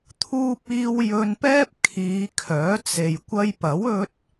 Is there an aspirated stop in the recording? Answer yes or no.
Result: yes